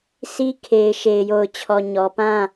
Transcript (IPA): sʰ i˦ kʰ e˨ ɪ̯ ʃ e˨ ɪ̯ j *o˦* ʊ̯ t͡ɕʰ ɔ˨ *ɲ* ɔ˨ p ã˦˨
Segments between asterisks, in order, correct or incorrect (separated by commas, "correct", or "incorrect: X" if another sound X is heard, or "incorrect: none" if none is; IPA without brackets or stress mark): incorrect: o˨, correct